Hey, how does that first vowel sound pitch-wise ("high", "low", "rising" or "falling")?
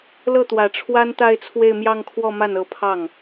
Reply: falling